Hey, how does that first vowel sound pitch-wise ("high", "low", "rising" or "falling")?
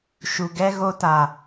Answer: low